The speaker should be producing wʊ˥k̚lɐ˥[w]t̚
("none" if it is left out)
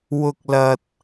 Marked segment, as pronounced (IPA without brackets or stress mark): none